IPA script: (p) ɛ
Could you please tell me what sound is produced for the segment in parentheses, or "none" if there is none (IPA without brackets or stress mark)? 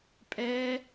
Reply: pʼ